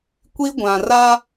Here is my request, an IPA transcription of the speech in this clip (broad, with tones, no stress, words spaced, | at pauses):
kʷi˦ ɡʷã˨ra˦